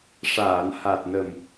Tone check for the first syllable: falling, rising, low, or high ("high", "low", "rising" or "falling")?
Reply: low